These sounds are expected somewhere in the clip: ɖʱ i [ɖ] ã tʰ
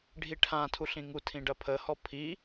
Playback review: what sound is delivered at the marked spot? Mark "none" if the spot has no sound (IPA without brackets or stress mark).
ʈʰ